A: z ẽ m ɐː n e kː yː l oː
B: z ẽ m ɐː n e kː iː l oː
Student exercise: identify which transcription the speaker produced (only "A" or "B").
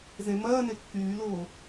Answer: A